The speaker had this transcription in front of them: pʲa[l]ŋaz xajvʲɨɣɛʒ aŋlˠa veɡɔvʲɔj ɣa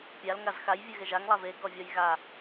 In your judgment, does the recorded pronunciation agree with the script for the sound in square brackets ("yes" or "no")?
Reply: yes